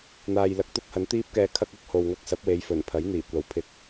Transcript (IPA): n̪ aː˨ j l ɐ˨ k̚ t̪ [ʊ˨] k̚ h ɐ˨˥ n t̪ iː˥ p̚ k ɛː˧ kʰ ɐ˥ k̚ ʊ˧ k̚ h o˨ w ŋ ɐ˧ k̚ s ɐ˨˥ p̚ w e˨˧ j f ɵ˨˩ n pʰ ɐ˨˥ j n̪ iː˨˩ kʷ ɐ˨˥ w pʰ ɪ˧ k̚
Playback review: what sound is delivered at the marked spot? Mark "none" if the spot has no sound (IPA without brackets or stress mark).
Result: ʊ˥